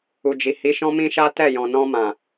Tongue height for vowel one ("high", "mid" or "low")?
high